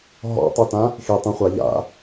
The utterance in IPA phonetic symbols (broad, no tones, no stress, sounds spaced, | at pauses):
ɦ ɔ̰ tˤ u t ã | x i tˤ ũ χʷ a ʎ a̰